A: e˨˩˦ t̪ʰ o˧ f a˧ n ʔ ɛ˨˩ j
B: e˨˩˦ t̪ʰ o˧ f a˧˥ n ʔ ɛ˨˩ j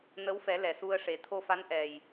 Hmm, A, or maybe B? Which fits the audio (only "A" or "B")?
B